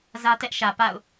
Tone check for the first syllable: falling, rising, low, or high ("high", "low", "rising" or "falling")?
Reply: high